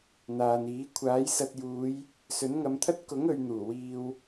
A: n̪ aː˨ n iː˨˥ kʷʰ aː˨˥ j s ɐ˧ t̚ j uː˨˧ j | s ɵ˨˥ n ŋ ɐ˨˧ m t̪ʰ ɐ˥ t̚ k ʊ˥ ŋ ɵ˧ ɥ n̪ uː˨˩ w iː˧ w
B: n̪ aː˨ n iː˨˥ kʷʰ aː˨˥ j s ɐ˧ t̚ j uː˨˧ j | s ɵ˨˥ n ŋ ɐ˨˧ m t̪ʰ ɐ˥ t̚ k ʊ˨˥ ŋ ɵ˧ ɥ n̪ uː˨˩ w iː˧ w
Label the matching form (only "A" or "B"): B